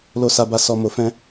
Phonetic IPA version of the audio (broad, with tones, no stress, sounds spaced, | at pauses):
l o˧ s a˧ b a˧ s ɔ˧ m o˧ f ɛ̃˦